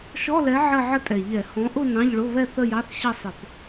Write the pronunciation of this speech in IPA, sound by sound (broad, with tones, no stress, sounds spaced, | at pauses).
ʃ ɔ˧˥˧ l ɛ˨˥ ʕ ɜ˥˧ ʕ ə˥˧ tʼ ɛ˨˩ ʎ ɛ˧˩˧ h ɔ̃˨˥ ʔ ʊ˥˧ n ɑ̃˧˥˧ ʎ ɭ ʊ˧˥˧ β ɛ˥˧ θ ə˥˧ j ɑ˧˥˧ θ ɕ ʌ˥˧ sˤ ɪ˧˩˧ p